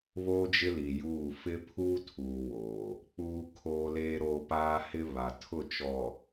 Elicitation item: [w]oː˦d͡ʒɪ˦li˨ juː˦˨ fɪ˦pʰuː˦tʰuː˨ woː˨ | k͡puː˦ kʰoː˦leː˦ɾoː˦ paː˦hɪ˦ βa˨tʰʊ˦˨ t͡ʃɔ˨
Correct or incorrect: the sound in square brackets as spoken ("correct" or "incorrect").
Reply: incorrect